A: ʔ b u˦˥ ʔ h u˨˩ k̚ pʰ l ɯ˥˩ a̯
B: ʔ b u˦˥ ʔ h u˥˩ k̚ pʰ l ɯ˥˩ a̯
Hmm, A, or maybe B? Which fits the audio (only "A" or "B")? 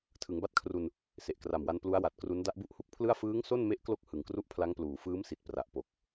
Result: B